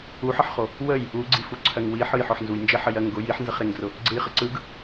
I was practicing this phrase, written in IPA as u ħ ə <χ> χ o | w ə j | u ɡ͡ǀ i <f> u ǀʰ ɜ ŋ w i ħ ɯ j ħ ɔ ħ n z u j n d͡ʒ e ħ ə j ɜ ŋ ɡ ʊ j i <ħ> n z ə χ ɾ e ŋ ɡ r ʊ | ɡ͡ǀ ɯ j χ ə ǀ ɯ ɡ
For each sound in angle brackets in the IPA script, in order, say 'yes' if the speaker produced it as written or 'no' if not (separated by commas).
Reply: no, yes, yes